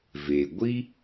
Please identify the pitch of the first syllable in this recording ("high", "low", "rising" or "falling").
low